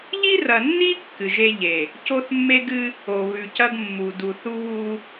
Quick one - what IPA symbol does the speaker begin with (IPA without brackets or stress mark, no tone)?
ʎ